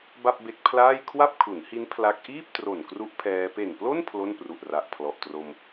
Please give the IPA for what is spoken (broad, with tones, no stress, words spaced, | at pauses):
ba˥˩p̚be˦˥k̚pʰlaː˥˩j kʰwa˥˩p̚kʰu˩˦nhi˦˥n pʰla˦˥k̚ ʔiː˥˩p̚tro˨˩n kru˦˥ʔpʰɛː˧ pe˨˩nplo˥˩n pʰlo˥˩npru˨˩ʔra˨˩ʔ pʰlɔ˨˩ʔtro˧m